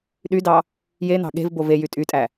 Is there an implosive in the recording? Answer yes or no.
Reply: yes